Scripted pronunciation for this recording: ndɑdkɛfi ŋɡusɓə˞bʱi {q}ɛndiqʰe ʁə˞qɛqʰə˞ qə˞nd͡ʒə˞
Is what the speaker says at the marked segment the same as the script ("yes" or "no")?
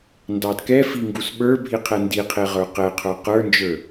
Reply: no